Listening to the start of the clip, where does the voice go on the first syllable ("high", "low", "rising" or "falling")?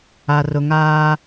low